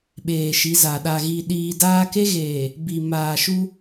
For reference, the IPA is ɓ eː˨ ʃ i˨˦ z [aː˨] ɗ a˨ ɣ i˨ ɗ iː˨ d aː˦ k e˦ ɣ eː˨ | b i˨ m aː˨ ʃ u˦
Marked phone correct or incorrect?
incorrect